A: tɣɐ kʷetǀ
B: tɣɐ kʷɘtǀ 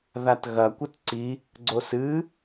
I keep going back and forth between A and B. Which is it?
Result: B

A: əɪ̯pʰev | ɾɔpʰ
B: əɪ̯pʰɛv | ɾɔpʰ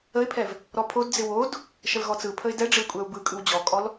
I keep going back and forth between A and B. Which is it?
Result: B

